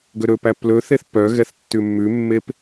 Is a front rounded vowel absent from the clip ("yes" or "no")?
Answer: no